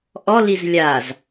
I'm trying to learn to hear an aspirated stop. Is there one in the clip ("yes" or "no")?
no